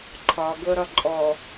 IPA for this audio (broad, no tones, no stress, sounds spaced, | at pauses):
ǃʰ ɒ ɡ ɤ ɾ ɒ ǃʼ ɔ